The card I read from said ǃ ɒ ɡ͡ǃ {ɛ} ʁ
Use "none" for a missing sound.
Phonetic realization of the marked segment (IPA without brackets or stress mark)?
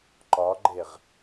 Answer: e